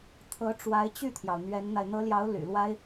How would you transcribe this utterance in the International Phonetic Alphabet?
t̪ʰ ɤ˧˥ ʈ͡ʂ w a˧˥ ɪ̯ t͡ɕ y˥˩ t̪ʰ j ɑ˩ ʊ̯ n̪ ɥ ɛ˧˥ n n̪ a˧ ɪ̯ n̪ ɤ˧˥ l j ɑ˧˥ ʊ̯ l y̰˨˩ l w a˥ ɪ̯

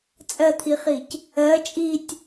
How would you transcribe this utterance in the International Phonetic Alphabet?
t͡sʼ ɜ t̪ʰ i χ i c | ɜ t͡ʃʼ i tʲ

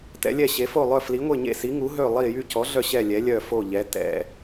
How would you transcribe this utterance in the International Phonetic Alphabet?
t ɛ̰˨˥ lʲ ɛ˦˨ ɕ e˨˥ f o˦˨ lˠ œ˦˨ f l i˨˥ ŋʷ e˦˨ ɲ ḛ˦˨ s i˨˥ ŋ u˨˥ ɦ ø˦˨ lˠ i˦˨ j y˦˨ c ɔ˨˥ ɮ œ˦˨ ɕ ɛ˦˨ lʲ ɛ˨˥ lʲ œ˦˨ f o˦˨ ʎ ɛ˨˥ t ɛ̰˦˨

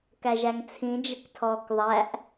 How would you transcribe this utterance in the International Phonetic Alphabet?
k æ ʒ æ ŋ t͡sʰ ĩ d͡ʒ ə k tʰ ɔː k ðˤ æ ʔ

